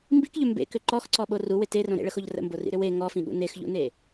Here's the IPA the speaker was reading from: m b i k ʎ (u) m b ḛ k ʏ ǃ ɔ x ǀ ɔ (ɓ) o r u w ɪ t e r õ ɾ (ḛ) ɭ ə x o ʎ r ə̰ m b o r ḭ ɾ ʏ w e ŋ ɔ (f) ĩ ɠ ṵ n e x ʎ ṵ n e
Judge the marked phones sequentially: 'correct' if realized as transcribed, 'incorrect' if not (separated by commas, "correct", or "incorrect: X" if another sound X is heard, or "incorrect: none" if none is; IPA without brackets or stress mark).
incorrect: ʏ, correct, correct, correct